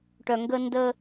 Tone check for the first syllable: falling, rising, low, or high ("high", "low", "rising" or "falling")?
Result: low